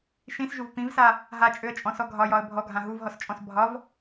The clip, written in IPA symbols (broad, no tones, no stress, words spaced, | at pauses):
ʃĩsʒuv pĩvsa | ɦat͡ʃʼøə̯t͡ʃʼɔ̃sɔ ɡʱɒjɒə̯ bʱɔɡʱã ɦuvɦɔst͡ʃʼɔ̃s bʱɒv